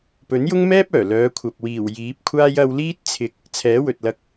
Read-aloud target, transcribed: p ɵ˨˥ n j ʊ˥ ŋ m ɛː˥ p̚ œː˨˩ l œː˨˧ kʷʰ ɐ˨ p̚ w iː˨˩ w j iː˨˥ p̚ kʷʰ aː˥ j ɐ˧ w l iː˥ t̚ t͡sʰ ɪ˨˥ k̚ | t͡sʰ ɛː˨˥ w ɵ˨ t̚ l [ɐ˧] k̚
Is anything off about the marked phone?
no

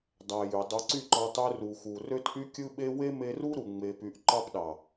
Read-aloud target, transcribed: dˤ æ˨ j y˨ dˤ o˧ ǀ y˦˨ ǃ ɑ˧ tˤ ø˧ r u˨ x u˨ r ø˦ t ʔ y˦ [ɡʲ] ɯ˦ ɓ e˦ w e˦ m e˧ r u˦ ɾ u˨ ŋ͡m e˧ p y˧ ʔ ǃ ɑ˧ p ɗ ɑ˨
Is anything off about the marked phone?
yes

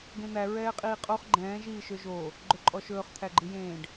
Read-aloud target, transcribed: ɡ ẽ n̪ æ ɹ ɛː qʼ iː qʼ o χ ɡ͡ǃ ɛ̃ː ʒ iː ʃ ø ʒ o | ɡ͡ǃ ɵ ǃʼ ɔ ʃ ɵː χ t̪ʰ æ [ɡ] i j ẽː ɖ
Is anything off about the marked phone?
yes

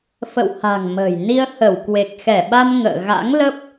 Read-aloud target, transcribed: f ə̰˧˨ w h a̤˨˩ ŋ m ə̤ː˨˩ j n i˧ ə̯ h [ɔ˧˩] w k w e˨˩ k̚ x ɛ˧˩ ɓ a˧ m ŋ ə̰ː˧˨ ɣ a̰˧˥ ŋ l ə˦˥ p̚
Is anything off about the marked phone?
yes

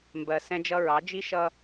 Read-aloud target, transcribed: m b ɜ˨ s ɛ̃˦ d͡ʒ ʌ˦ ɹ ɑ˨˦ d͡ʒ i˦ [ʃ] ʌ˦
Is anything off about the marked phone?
no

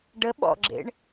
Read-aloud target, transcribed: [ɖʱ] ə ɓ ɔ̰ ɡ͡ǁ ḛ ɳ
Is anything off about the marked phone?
yes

